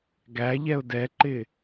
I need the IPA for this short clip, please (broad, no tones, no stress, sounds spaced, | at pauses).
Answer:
ɡ æ ʎ ɛ ʊ̯ d ɛ ǃ ɪ